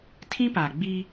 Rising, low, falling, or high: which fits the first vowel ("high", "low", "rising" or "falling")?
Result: high